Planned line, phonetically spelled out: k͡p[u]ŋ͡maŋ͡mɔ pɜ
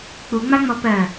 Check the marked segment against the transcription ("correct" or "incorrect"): correct